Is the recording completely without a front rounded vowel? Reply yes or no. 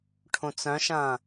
no